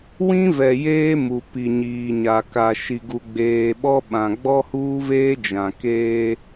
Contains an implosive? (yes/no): yes